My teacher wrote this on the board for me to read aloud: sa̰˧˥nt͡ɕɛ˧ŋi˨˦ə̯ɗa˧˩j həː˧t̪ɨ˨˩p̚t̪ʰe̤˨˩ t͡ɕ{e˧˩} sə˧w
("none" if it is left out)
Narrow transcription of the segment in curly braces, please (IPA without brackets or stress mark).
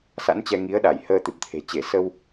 e˧˩